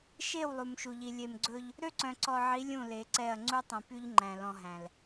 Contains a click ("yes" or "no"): yes